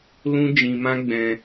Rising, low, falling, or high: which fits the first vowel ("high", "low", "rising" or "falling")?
high